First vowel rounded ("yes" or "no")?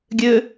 yes